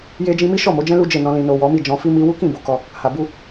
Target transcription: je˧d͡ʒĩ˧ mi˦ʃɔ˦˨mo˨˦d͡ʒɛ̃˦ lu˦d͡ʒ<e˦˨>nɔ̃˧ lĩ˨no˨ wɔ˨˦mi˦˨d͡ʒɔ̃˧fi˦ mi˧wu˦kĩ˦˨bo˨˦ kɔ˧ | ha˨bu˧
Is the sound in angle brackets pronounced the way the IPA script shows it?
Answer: yes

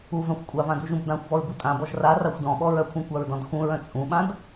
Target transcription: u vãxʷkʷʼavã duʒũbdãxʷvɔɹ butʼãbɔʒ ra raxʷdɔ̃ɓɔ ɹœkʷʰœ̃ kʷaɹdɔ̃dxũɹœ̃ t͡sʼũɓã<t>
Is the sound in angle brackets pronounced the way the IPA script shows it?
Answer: no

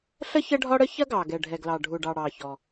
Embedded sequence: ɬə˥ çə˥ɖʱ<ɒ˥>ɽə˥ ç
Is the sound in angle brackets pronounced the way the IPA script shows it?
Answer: yes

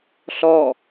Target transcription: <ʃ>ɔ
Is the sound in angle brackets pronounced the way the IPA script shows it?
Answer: no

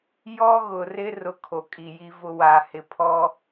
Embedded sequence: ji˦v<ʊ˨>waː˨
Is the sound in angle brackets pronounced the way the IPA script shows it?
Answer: no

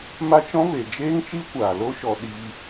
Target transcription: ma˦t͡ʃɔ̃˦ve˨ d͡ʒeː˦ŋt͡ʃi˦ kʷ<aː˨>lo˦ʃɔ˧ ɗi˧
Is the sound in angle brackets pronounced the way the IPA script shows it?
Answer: yes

